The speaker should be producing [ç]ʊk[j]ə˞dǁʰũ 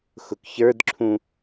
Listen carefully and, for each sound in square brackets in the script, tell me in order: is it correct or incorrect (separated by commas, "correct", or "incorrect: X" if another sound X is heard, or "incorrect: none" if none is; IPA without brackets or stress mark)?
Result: incorrect: x, incorrect: ç